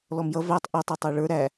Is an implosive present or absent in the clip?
absent